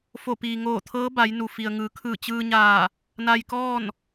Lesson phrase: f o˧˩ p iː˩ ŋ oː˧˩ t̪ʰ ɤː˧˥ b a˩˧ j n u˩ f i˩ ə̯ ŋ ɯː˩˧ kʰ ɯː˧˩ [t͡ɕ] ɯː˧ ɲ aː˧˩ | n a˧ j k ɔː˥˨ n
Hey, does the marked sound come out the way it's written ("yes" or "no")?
yes